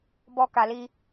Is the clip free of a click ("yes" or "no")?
yes